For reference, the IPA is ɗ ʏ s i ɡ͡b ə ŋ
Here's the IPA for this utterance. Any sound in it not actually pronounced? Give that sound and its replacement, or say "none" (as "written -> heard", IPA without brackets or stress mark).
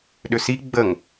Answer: none